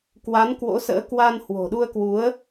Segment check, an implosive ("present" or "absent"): present